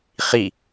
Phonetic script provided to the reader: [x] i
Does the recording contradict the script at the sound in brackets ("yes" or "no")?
yes